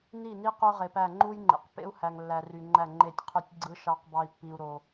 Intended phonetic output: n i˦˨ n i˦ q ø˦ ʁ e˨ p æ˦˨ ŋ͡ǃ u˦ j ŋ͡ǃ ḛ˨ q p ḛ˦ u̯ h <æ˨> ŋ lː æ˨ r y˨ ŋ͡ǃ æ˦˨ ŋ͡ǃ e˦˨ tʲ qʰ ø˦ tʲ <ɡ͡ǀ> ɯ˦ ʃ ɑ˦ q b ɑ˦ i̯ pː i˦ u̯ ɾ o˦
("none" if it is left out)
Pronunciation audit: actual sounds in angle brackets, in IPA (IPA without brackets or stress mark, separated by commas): æ˨, ɡ͡ǀ